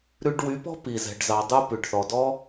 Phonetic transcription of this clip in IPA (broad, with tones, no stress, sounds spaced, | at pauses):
ɾ ʉ˧ ɖ w y˨˦ p ɔ̤˦ p i˨ z ɛ̤˨ ɖ z ɑ˨ dˤ u˧ p ʉ˨ ɖ θ ɔ˨ d ɔ˦